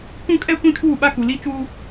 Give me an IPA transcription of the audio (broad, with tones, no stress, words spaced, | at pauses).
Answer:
kũ˦kʼɛ˦ kʷĩ˦kʰuː˦˨ɓa˦ ku˨li˦t͡ʃuː˦